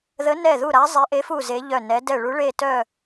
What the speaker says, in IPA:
ð ə˧˥ n ɛ˦˨ ð u˦˨ ɾ a˧˥ zˤ e˧˥ ʔ e˧˥ f u˦˨ z e˧˥ ʎ œ˦˨ n ɛ˧˥ d ɛ˦˨ ɭ u˧˥ ɭ e˦˨ t œ˦˨

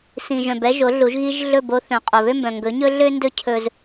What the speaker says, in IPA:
s ĩ˨ ʒ œ̃˨ b ɛ˦ ʒ o˨˦ ɮ u˨˦ ʒ ɣ i˦ ʒ ɮ ɵ˦˨ b o˦ θ œ̃˨ qʼ o˨ β ø˦ m b œ̃˨ ŋ ɡ ɵ˨˦ ɲ ɵ˦ ɮ ø˦ n d ɵ˦ cʰ ɵ˦ z

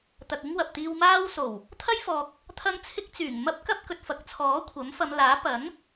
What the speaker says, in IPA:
t̪ ɐ˨ k̚ ɪ˥ ŋ w ɐ˨ p̚ t̪ iː˧ w m aː˥ w s o˨˩ w | t̪ʰ ɐ˥ j f ɔː˨ k̚ | t̪ʰ ɐ˥ ŋ t͡sʰ ɪ˥ k̚ t͡s yː˨˩ ŋ m ɐ˥ p̚ k ɐ˥ p̚ k ɵ˨ t̚ f ɐ˨ k̚ t͡sʰ ɔː˨˥ kʷʰ ɐ˨˥ m f ɐ˨˧ m l aː˨˥ p ɐ˨˥ ŋ

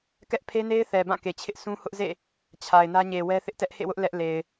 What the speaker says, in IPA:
k ɛ˦ ʔ pʰ e˦ n e˦ ɪ̯ θ ɛ˨ b ã˦˨ k e˨ t͡ɕʰ ɪ˦ ʔ s ũ˦ h ʊ˦ ʔ z ḛ˦˨ | t͡ɕʰ a˨ ɪ̯ n ä˦ ɲ e˨ w ɛ˦ θ ɪ˦ ʔ t ɛ˦ ʔ h ḛ˦˨ w ʊ˦ ʔ l ɛ˦ ʔ l e˨ ɪ̯

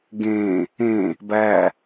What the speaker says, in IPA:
ɡ ẽ | ẽ | b æ

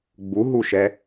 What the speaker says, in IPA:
ɡ͡b u ɦ u ʃ ɛ

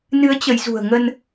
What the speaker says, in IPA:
n ɨ˨˦ ə̯ t͡ɕ ə˨˦ j z ṳ˨˩ ə̯ ŋ ə˧ n

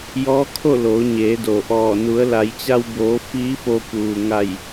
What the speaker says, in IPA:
j ɔː˧˥ kʰ o˥˨ l oː˩˧ ɲ eː˩˧ d o˩ ʔ ɔː˧˩ n u˩˧ ə̯ l a˩˧ j t͡ɕ a˧ w b oː˩˧ f iː˧˥ f o˧ p uː˩ ŋ a˧˩ j

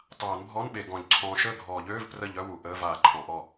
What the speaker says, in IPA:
tˤ aː˨˩˦ n bʱ ɔ˧˥˧ n ɓ e˨ ɡ ɔ̃˨˩˦ ʎ ǀʰ ɔ̃ː˨ ʃ əː˥˩ ɡʱ ɔː˨˩˦ ʎ øː˧˥˧ v p r ə˥˩ ʎ œ˧˥˧ w u˨ ʔ əː˧˥˧ v aː˨ ǃʰ ɔ̃˨˩˦ ʔ ɔ˥˩

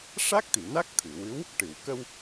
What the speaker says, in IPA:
ʂ a˦˥ k̚ t̪ i˨˩˨ n a˦˥ k̚ t̪ʰ ɨ˨˩˨ w ɨ˧˥ w | ʈ ɨ˨˩˨ w k ə˧ w

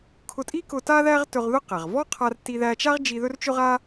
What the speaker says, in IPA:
kʰ ʊ˧ tʼ i˥ k ʊ˧ t a˥ ð æ˥ ʁ t ɵ˧ ʁ ð ʊ˥ q æ˩ ʁ v ɔ˥ qʰ a˧ r t i˧ ð æ˧ t͡ʃ a˥ ʁ d͡ʒ i˧ ð ɵ˥ r t͡ʃ ʊ˥ ʁ a˥

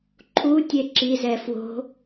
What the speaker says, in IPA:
ǃʰ u tʲ e ǁ i z ɛ f w o̤

